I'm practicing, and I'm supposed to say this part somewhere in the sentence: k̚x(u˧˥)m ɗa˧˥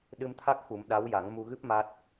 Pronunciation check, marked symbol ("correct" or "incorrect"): incorrect